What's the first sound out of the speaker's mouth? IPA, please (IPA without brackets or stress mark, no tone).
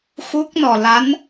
x